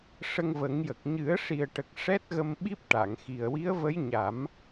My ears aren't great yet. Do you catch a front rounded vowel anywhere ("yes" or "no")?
no